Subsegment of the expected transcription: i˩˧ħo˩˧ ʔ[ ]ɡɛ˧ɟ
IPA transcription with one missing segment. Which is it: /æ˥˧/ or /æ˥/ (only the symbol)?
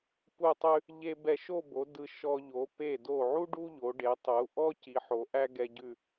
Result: æ˥